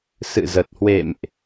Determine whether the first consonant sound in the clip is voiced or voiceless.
voiceless